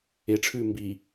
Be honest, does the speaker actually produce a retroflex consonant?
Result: yes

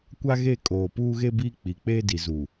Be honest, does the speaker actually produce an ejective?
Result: yes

